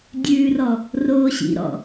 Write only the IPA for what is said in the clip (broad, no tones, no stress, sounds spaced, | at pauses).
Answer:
dʲ ʉː r ɔ | r oː ɕ ḭ ɾ ɔ̰